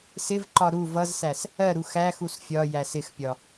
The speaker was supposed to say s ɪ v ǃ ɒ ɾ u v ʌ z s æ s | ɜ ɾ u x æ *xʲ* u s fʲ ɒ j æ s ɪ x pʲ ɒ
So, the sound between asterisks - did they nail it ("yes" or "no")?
no